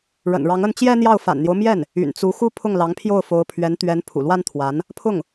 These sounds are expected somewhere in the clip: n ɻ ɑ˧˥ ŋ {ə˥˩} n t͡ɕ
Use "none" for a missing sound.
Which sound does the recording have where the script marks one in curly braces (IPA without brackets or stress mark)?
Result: ə˥˩